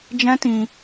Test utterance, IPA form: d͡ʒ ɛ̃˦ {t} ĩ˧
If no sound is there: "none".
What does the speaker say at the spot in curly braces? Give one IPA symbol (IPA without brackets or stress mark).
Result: t